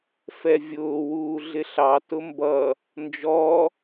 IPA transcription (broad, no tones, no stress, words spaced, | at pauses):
fɛvʲʊː wuːɮɪɬɑ tʊmbʌ | nd͡ʒɔ